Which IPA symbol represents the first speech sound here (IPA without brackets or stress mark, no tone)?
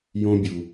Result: j